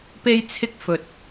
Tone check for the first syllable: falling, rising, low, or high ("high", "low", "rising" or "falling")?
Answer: high